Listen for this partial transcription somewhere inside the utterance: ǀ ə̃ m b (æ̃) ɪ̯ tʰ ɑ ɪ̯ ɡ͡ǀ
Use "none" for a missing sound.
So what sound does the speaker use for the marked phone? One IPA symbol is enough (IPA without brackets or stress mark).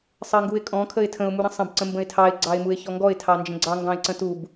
ə̃